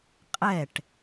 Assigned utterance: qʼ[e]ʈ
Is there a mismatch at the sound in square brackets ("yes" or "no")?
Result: yes